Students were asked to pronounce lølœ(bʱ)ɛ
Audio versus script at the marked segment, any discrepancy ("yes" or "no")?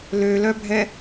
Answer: no